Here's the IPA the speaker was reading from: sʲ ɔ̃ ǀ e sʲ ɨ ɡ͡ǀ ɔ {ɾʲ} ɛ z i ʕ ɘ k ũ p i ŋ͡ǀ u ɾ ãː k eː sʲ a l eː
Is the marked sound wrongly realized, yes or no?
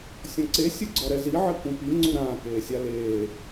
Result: yes